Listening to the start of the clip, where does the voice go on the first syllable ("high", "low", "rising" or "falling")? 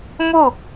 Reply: falling